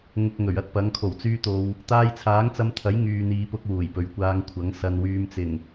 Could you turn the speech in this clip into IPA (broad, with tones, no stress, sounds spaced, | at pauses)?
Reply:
ŋ ʊ˧ k̚ ŋ ɵ˨˩ ɥ ɐ˥ t̚ p ɐ˨˥ ŋ kʰ o˨˩ w t͡s yː˧ t̪ o˨ w | t̪ aː˧ j t͡sʰ aː˨˥ ŋ t͡s ɐ˧ m t̪ʰ ɐ˨˥ j ŋ yː˨ n̪ iː˨ p ʊ˧ k̚ w uː˨˩ j p ɵ˨˩ ɥ kʷ aː˧ ŋ kʷʰ ɐ˨˥ ŋ s ɐ˨ n w yː˨ m t͡s ɪ˨˩ ŋ